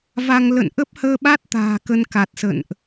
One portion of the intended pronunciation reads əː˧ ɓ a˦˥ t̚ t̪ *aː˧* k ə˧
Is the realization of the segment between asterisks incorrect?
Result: yes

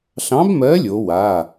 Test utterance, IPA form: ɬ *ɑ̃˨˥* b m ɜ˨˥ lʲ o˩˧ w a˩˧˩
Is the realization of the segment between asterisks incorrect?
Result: no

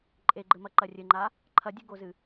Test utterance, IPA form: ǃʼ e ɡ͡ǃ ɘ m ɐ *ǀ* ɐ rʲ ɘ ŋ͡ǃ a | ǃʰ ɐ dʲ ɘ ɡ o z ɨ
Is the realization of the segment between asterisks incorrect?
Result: yes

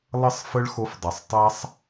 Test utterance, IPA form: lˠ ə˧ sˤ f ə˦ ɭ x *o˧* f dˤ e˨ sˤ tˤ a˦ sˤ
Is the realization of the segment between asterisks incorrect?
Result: no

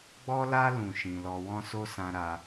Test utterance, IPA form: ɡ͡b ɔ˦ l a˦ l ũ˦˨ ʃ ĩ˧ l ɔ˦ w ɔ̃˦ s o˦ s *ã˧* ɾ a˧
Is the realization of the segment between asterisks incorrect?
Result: no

